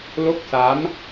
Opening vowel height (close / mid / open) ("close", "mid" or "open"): mid